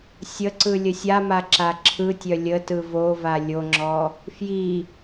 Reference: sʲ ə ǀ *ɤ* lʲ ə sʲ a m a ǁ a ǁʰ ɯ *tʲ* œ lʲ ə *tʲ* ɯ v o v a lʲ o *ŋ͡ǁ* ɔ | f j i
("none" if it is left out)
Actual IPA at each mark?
ɯ, tʲ, t, ŋ͡ǁ

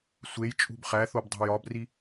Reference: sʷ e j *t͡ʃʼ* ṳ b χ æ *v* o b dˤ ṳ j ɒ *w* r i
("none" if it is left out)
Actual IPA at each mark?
t͡ʃʼ, θ, b

